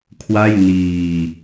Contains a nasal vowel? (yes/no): no